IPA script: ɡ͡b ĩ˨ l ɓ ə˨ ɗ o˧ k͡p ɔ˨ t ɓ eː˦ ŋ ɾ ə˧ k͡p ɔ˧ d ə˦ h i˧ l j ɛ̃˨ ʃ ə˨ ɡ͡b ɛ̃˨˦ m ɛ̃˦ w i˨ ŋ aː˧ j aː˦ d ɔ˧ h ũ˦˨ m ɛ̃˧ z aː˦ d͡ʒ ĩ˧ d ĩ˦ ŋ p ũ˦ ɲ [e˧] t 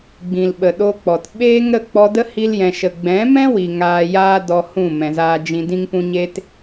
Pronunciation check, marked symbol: incorrect: e˦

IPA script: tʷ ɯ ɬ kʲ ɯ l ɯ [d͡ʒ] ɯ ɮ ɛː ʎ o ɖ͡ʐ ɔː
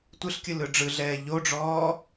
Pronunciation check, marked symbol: incorrect: ɖ͡ʐ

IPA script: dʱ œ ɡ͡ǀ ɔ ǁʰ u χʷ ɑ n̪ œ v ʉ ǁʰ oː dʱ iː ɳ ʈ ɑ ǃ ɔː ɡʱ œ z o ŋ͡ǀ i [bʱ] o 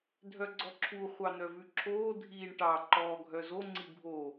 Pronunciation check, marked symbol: correct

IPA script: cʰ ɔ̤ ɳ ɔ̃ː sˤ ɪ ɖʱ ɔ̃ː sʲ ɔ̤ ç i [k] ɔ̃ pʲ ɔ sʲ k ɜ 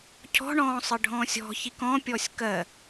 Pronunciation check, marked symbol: correct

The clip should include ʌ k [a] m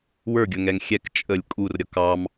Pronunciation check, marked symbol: incorrect: ɑ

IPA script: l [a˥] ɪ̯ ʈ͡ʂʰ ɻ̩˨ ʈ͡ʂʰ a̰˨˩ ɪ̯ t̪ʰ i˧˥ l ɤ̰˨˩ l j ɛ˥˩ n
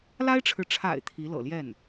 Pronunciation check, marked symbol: correct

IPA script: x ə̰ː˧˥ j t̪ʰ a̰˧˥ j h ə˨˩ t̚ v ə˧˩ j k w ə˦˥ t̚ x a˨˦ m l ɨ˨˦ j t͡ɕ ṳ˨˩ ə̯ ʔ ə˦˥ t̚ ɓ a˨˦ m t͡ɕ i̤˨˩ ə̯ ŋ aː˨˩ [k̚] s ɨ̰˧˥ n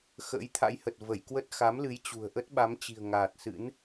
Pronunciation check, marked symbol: incorrect: t̚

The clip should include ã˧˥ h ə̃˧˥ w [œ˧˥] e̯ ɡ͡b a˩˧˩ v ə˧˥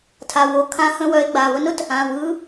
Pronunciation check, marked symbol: correct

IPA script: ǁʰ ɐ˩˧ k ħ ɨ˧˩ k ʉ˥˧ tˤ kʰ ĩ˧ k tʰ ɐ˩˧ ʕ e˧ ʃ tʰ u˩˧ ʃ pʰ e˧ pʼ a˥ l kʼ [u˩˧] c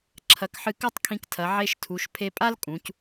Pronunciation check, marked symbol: incorrect: ũ˩˧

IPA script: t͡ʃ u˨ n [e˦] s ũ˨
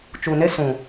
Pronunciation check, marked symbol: correct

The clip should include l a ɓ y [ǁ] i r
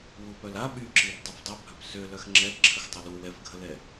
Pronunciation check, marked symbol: correct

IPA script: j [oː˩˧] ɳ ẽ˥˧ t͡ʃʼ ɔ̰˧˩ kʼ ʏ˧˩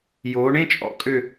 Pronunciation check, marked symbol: correct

